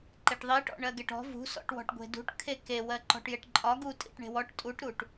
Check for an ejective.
present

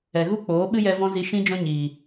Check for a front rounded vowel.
absent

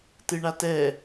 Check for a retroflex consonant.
present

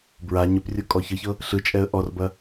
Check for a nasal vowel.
absent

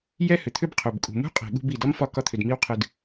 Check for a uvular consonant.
present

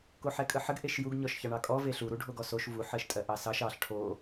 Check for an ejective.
present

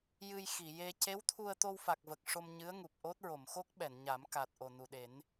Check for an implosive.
present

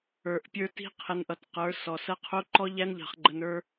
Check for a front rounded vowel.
absent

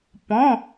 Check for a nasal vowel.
present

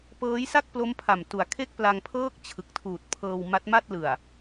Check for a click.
absent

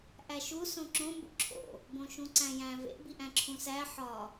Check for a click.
present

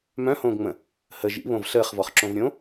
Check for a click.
present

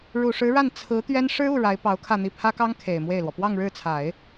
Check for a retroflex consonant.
present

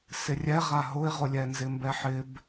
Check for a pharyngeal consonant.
present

